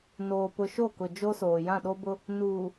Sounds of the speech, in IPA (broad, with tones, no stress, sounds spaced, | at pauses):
n oː˨ p ʊ˨ ʃ o˦˨ k ʊ˨ d͡ʒ o˦ s oː˨ j ã˦˨ ɗ o˦ b ʊ˦ | n uː˨